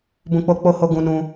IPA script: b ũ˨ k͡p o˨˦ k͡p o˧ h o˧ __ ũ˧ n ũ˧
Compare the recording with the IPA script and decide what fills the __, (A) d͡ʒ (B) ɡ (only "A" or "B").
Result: B